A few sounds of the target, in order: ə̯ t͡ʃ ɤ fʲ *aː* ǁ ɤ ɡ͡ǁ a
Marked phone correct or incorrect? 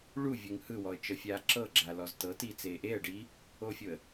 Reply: correct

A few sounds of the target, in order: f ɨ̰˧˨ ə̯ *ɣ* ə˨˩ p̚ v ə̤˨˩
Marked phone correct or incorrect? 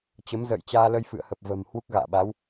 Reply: incorrect: h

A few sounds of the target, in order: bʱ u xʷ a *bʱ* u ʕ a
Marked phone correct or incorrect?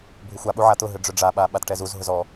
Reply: incorrect: ɓ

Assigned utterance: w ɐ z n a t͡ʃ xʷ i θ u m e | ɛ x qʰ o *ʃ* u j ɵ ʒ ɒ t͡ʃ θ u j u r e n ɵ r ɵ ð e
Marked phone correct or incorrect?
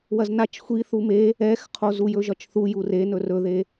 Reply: incorrect: z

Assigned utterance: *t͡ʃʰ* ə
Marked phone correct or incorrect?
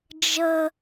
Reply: incorrect: d͡ʒ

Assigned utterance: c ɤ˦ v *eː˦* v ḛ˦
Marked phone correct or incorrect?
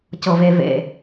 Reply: incorrect: e˦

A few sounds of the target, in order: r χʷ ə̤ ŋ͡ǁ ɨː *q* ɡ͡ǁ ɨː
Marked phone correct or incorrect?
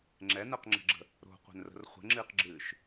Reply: correct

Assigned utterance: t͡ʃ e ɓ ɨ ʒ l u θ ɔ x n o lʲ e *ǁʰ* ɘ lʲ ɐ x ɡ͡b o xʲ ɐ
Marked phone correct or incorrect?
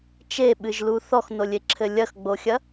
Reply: correct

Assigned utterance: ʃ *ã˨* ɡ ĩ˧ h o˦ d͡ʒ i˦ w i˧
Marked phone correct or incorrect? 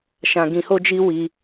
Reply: incorrect: ã˧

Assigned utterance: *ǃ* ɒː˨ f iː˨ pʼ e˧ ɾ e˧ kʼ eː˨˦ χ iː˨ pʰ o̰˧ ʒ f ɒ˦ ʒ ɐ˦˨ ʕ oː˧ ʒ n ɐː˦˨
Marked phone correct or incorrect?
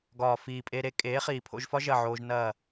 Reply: incorrect: ɡ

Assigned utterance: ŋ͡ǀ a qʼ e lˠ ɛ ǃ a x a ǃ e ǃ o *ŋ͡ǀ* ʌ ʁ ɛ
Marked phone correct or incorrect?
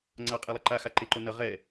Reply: incorrect: n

